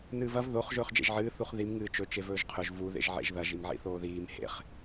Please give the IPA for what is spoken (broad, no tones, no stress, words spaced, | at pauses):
nɨːvɐv ðoχ ʒɵːχd͡ʒḛʒʕɨː θuχðim ŋɨːt͡ʃɵ t͡ʃevɵːʒqʰɵʒ vu ðḛʒʕḛʒðɐʒ imʕḭθoːðiːm hḛχ